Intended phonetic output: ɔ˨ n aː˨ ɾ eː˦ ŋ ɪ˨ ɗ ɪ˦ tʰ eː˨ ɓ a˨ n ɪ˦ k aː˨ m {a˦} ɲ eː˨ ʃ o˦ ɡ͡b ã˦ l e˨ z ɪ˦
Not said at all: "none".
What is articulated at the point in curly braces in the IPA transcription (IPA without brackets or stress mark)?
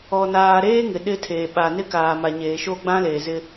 a˨